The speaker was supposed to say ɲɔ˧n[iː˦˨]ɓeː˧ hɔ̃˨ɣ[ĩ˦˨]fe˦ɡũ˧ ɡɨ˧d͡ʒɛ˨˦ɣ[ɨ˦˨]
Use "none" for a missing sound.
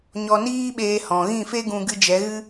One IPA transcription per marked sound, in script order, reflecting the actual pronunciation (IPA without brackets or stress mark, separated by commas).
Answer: iː˦, ĩ˦˨, ɨ˦